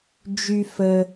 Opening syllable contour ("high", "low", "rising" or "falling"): low